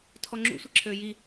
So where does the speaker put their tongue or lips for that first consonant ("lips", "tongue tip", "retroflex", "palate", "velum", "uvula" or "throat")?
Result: tongue tip